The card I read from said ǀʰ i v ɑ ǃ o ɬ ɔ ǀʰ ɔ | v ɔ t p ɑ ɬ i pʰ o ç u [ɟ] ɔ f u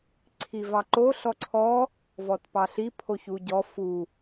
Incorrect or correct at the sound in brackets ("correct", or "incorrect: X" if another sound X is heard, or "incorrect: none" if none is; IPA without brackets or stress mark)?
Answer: correct